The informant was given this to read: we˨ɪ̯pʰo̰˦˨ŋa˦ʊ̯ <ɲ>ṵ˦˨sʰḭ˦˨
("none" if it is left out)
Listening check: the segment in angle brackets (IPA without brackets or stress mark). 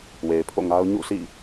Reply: ɲ